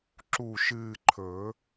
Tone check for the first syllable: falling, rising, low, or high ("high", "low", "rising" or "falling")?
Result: low